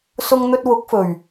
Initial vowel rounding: rounded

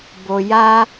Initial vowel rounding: rounded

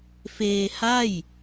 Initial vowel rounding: unrounded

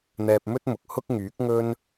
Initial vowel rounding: unrounded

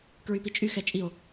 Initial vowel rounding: rounded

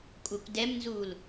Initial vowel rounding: rounded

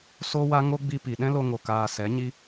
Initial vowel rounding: rounded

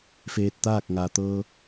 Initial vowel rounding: unrounded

